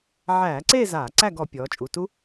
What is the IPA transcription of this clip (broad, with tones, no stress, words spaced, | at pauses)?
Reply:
ʕæː˧˩˧ǀeː˥˧ zaː˧˩˧ǀæ˥˧ɡɔ˩˧ pʲɔː˩˧t͡ʃʼu˩˧˩tu˦˥